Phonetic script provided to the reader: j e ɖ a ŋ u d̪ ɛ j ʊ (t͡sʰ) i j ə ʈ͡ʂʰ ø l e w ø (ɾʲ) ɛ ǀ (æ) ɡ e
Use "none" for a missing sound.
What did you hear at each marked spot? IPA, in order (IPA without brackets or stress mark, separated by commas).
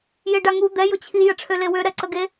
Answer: t͡ɕʰ, ɾ, ə